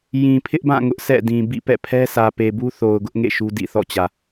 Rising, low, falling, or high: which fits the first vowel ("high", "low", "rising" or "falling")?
low